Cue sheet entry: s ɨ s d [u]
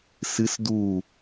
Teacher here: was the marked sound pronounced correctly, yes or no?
yes